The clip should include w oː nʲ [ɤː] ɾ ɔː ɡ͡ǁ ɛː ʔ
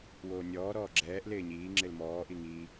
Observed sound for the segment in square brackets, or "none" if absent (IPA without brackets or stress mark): ɔː